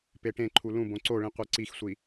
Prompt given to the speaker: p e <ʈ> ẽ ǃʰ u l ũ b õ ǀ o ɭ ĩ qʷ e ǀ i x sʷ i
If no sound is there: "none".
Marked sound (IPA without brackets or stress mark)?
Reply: ʈ